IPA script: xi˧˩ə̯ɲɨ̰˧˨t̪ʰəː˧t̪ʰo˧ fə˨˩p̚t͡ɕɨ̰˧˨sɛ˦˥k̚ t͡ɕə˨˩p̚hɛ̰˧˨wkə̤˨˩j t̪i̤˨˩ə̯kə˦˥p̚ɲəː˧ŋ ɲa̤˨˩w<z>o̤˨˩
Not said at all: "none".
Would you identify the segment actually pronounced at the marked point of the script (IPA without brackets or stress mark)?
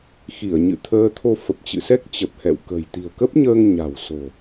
s